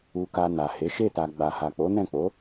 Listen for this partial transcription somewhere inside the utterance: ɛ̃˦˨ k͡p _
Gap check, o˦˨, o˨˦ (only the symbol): o˨˦